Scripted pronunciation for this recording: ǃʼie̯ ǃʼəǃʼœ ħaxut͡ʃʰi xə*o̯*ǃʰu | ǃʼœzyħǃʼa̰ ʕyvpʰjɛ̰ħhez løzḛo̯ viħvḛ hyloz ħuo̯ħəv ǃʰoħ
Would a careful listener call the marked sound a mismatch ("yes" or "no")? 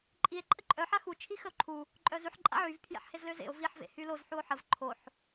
no